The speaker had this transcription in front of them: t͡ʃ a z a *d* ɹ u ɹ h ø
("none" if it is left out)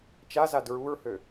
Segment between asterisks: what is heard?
d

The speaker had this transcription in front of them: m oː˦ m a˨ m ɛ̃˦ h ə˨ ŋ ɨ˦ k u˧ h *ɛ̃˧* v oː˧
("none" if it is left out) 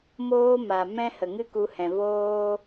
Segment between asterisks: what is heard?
ɛ̃˨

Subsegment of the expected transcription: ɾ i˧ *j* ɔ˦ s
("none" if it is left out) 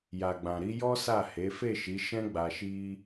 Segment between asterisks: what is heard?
j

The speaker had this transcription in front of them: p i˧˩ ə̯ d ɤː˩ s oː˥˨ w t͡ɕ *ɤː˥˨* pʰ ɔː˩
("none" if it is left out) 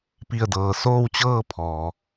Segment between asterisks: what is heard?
ɤː˥˨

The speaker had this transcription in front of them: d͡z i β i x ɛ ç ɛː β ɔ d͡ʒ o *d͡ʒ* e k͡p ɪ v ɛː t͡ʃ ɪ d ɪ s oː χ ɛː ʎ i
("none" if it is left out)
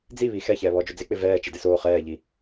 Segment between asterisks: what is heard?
d͡z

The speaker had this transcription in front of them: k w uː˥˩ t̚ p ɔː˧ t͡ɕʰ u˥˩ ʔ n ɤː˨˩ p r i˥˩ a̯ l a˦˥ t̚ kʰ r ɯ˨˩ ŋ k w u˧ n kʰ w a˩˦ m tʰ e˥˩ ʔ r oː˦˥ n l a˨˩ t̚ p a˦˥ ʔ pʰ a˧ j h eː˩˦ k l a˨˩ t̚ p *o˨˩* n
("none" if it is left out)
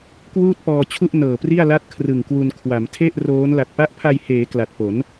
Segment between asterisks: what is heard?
o˩˦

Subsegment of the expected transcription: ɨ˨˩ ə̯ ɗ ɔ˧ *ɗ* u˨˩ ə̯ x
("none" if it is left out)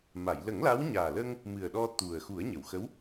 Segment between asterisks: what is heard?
t̪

